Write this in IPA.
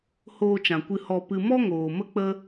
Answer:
h oː˧ t͡ʃ ã˨ kʷ ɨ˧ h ɔ˧ p ɨ˧ m ɔ˦ ŋ oː˨ m ə˦ k͡p ə˦

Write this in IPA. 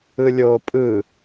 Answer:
ɯ lʲ oː pʼ ɯ

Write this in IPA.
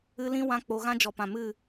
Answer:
ɨ˦ l ĩ˦ w ã˦ k͡p o˧ ɣ ã˦ d͡ʒ ɔ˨ p ã˨ m ɨ˦˨

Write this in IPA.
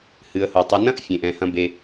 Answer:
h ɨ˨ ə̯ h o˨ tˤ e˨ n ɐ̃˦ ʔ fʲ ẽ˨ ʔ ɛ̃˨ h ɐ̃˦ b e˦

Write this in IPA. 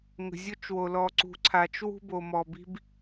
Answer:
ŋ ə̤˨ zʲ o˦ t͡ʃ w o˨ l ɔ˨ ǀ ṳ˨ ǀʰ a˨ t͡ʃ w ṳ˦ b o˨ m ɔ˨ b i̤˦ b

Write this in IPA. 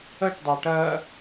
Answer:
ə ʈ dˤ ʌ ʈ ɜ

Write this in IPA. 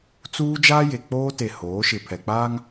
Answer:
t͡s uː˦ d͡ʒ aː˦ j e˨ k͡p oː˦ t e˨ h oː˨˦ ʃ ɪ˨ pʰ ɛ˨ k͡p aː˦ ŋ

